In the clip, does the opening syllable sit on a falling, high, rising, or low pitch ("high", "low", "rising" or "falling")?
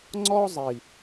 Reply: high